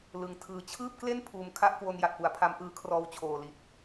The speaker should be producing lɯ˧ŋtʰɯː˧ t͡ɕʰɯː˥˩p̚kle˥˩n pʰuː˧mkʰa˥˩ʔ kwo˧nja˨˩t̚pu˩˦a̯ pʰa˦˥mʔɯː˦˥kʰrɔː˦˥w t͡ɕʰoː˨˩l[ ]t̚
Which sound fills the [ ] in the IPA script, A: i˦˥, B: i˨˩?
B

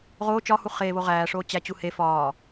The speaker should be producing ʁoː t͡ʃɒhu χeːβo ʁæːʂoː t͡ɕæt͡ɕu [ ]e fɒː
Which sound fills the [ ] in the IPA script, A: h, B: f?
A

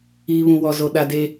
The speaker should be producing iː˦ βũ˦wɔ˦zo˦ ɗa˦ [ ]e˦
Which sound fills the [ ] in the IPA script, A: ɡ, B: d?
B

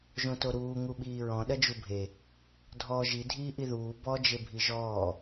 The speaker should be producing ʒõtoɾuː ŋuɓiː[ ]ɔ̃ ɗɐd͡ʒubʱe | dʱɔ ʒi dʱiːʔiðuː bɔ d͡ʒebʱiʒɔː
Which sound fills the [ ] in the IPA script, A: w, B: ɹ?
B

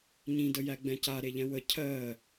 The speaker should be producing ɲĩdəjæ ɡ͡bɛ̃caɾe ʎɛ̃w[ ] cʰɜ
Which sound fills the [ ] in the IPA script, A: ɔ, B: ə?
B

